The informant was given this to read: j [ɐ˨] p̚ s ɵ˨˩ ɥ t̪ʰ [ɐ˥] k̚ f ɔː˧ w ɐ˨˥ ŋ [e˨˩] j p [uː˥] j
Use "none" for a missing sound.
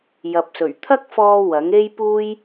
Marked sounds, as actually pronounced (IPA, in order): ɐ˨, ɐ˥, e˥, uː˥

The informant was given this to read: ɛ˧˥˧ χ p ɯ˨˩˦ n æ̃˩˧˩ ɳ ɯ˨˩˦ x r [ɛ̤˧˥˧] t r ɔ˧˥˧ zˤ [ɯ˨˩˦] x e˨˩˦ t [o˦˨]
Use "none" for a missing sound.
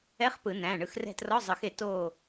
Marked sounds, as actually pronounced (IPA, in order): ɛ̤˦˨, ɯ˨˩˦, o˦˨

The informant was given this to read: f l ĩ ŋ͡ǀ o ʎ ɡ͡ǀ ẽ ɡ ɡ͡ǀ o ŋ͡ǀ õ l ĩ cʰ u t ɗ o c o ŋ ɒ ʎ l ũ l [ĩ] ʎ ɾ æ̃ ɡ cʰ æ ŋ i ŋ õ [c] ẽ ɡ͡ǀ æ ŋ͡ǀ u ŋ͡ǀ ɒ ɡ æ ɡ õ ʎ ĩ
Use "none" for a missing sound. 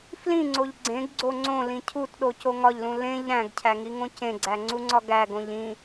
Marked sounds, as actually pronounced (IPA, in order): ẽ, c

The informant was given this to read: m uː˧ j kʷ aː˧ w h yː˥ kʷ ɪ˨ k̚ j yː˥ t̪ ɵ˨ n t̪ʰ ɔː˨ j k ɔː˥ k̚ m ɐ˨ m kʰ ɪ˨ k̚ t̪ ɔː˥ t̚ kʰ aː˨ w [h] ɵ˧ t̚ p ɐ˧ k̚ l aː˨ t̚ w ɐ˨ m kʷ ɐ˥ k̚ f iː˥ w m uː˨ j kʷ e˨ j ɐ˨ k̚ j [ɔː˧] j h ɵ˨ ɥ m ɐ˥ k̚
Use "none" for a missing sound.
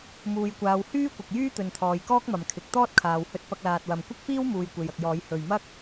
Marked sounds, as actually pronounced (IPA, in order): h, ɔː˨˧

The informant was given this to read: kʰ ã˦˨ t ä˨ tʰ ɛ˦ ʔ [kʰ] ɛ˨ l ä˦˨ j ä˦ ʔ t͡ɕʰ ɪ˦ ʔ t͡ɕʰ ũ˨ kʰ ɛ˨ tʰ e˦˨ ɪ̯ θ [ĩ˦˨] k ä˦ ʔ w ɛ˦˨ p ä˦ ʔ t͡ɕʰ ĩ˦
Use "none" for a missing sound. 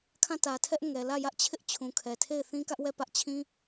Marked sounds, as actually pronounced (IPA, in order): ŋ, ĩ˦

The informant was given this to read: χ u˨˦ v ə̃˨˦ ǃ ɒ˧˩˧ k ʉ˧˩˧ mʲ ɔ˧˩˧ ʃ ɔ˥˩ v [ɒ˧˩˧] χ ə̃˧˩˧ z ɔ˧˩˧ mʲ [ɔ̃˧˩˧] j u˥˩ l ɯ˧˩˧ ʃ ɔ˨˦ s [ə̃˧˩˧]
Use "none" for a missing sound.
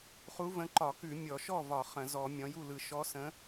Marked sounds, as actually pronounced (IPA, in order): ɒ˧˩˧, ɔ̃˨˦, ə̃˨˦

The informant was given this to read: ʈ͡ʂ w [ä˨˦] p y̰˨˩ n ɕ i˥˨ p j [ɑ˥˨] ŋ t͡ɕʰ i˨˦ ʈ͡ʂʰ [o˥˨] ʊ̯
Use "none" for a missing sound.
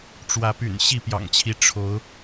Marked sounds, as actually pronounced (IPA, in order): ä˨˦, ɑ̰˨˩, o˨˦

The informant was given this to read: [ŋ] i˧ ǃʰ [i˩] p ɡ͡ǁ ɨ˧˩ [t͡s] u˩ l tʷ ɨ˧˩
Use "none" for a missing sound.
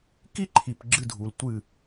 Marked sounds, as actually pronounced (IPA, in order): k, i˩, dʱ

